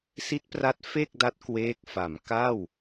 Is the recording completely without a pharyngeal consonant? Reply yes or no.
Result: yes